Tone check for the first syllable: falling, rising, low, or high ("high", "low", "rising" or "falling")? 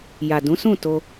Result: low